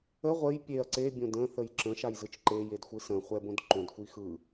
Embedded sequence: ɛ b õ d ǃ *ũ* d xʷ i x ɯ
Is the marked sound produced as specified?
no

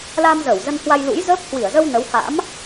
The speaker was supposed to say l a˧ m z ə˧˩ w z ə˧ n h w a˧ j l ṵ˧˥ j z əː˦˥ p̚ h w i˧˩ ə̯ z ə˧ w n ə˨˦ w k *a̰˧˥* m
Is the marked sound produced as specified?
yes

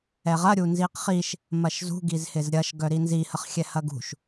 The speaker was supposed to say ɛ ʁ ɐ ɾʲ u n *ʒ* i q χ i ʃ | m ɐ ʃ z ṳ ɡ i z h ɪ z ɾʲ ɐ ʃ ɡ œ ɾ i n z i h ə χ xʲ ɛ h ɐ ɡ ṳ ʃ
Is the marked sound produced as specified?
no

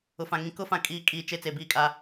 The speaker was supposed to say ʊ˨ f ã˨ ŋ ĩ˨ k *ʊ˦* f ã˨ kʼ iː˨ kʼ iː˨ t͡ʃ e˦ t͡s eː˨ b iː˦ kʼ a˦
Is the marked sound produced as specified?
yes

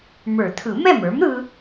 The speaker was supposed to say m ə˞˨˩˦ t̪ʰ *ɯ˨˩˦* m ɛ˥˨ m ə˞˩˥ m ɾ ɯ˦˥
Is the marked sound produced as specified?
yes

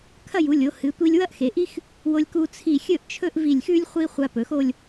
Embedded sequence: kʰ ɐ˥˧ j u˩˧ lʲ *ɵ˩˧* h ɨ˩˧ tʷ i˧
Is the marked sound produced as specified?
no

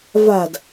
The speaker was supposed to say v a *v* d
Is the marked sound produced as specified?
no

